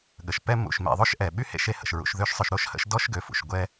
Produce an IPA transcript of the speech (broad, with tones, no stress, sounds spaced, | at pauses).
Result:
ɠ ə˩ ʃ p ɛ˦ m ṵ˨ ʃ m ḛ˨ ðˤ o˥ ʃ ʔ ɛ˩ ɓ y˥ h ḛ˥ ʃ e˦ h ə̰˨ ʃ ɹ ṵ˨ ʃ ð ø˦ ʃ sˤ ø˨ ʃ ɾ o˥ ʃ h ə̰˦ ʃ d ɔ˥ ʃ ɡ ø˨ f ṵ˩ ʃ ɡʷ ɛ˥